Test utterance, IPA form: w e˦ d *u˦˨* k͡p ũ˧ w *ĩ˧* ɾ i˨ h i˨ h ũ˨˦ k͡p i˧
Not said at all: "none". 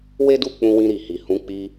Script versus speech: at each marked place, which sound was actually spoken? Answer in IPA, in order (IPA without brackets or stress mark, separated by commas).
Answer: u˦˨, ĩ˧